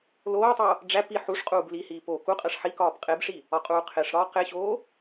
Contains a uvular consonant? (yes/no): yes